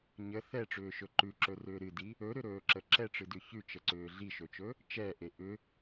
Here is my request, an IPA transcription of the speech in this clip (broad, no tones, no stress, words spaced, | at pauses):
ɲə θɛʈ͡ʂʏːʃɵ ǃʉǁɵrʏː ɾɨdi | ɵɾʏɾɵːǁə ǁɛʈ͡ʂɨdʉ çʉt͡ʃəǀʏː ɮiʃɵt͡ʃɵ | t͡ʃɛʔe ʔʏ